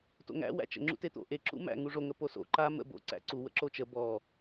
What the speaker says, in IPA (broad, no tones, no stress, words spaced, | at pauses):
to̰ŋæ̰ wæ̰t͡ʃə̰ ŋ͡ǁṵtet̪o̰ ʔeǁṵ mæ̰ ŋuʐoŋə poso̰ ǃa mə̰ bo̰ǀæ̰ ǀuwə̰ ǁot͡ʃə bɔ